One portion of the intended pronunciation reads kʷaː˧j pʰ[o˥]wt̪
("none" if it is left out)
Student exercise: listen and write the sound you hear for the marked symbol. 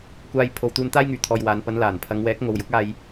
o˨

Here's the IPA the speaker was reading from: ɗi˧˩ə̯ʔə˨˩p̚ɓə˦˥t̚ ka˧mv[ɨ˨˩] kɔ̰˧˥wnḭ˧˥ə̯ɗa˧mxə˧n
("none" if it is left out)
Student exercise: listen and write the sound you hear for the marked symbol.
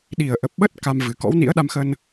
ɨ˨˩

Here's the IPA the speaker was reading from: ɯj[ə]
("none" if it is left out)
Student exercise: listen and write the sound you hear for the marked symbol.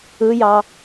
ɑ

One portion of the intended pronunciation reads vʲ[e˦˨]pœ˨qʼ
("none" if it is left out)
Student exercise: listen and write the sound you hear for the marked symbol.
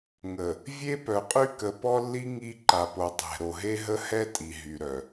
e˦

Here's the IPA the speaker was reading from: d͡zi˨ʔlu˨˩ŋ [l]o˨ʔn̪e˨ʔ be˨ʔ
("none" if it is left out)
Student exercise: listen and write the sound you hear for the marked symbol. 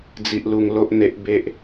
l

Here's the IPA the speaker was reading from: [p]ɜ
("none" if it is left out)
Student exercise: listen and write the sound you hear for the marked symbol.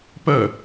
p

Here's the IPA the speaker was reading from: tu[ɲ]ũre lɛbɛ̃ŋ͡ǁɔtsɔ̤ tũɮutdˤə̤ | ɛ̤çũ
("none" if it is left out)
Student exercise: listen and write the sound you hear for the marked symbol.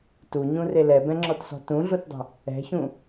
ɲ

